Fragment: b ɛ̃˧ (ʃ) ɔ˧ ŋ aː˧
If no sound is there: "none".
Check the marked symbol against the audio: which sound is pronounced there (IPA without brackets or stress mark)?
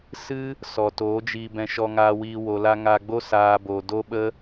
ʃ